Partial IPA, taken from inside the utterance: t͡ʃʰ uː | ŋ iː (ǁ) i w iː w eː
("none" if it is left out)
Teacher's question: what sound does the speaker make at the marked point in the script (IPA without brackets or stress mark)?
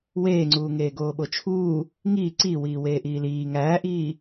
ǀ